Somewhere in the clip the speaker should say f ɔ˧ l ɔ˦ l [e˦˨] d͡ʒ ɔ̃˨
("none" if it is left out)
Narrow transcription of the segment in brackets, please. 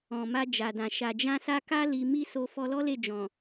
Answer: e˦˨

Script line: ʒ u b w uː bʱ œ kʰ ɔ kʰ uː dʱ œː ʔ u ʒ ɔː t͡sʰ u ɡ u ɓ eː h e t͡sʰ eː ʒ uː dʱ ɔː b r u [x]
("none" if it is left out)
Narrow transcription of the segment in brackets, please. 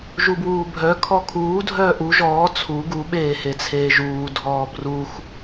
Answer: x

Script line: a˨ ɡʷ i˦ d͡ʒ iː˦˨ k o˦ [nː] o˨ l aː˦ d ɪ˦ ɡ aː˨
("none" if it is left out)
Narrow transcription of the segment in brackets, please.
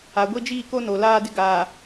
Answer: n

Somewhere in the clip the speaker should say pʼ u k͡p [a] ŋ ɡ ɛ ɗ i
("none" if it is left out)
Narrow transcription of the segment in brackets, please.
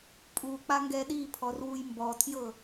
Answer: a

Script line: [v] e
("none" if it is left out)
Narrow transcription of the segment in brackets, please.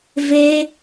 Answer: v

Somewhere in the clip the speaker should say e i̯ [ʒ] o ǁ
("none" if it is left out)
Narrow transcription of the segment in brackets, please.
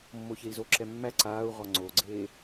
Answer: z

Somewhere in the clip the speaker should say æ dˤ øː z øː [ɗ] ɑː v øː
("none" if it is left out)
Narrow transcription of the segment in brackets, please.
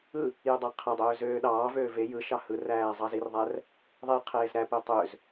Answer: ɗ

